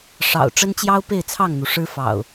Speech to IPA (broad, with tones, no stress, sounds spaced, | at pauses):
ʂ ɑ̰˨˩ ʊ̯ ʈ͡ʂ ə˦ n t͡ɕ j ɑ˦ ʊ̯ p e˥˨ ɪ̯ t͡sʰ ɑ˥˨ ŋ n̪ u˩ ʂ ɻ̩˦ f ɑ̰˨˩ ʊ̯